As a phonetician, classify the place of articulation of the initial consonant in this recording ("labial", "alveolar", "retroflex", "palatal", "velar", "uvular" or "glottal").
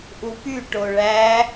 glottal